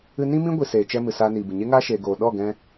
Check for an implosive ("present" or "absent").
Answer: present